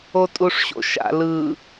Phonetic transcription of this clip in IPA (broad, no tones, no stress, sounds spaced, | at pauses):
o tʼ u ʂ ɕ o̰ ʃ a̰ l ɯ